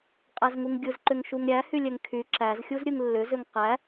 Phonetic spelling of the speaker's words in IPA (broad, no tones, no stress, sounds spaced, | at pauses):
qʼ æ z ŋ u ŋ ɡʲ ɯ z ǃ ʏ ŋ ʃ u ŋ ɾʲ æ h y lʲ ɛ ŋ kʰ y ǁ æ z xʲ u z ɾʲ ɯ ŋ lː ʏ z ʏ ŋ q æ